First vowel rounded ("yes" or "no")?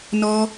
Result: yes